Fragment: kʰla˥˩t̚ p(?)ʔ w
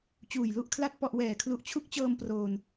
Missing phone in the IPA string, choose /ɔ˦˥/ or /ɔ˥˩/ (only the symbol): ɔ˥˩